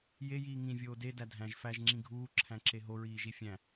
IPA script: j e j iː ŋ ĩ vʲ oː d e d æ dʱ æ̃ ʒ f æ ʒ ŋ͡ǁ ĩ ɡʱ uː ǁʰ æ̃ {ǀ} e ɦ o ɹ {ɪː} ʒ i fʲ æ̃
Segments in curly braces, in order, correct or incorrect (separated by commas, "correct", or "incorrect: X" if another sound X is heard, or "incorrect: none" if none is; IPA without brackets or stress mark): incorrect: ǁ, incorrect: iː